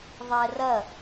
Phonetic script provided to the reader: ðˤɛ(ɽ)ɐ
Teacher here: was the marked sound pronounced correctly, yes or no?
no